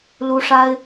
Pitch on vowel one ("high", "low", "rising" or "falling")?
high